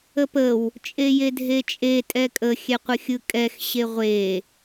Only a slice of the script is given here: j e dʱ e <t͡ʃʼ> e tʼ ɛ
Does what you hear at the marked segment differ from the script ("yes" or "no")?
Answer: no